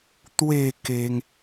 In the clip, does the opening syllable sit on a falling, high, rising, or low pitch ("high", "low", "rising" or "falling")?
falling